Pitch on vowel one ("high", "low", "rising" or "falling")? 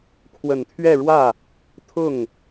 low